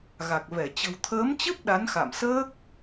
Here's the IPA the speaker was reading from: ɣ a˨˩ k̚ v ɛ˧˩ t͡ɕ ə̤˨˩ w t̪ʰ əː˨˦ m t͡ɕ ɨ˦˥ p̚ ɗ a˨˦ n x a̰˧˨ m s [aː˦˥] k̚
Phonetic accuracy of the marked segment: incorrect: əː˦˥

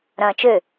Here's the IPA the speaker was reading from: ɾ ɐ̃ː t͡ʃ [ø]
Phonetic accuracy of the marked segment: correct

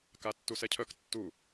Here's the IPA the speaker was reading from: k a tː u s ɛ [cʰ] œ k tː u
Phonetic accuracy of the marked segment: correct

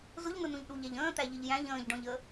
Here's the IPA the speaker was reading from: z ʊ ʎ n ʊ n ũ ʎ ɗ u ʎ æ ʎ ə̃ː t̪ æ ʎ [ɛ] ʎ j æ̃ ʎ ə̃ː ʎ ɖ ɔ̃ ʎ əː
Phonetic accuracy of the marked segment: incorrect: ɪ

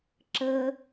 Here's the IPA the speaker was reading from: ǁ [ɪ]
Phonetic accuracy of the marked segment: incorrect: ə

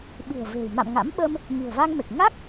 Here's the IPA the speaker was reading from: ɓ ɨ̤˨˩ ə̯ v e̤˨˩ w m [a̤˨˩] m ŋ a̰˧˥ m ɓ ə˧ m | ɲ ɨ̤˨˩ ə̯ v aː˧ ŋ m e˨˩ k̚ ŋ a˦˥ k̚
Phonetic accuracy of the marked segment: incorrect: a̰˧˨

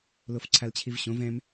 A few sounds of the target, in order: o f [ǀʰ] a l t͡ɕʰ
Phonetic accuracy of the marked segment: correct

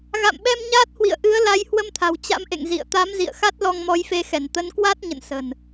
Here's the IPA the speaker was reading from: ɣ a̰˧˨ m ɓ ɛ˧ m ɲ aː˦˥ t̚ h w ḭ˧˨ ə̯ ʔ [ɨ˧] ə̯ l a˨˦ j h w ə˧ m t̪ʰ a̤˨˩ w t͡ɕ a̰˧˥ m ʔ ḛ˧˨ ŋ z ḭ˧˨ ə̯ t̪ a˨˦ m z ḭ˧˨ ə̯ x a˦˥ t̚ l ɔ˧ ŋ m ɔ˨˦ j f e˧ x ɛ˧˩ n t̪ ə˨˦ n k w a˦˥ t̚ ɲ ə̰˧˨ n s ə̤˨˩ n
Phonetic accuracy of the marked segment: incorrect: ɨ˨˦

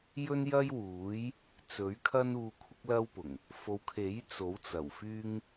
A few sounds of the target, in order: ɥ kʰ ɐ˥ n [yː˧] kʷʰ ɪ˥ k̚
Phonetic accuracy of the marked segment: incorrect: uː˧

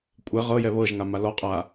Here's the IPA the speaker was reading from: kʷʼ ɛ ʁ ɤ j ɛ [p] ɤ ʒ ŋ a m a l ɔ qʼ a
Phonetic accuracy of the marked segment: incorrect: β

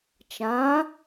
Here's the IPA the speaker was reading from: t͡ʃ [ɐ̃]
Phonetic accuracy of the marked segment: incorrect: ã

